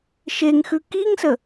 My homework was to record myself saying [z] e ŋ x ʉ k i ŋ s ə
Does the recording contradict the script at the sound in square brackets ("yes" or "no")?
yes